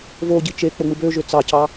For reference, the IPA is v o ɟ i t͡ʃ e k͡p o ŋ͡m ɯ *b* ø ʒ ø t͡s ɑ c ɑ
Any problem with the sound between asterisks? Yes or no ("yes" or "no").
no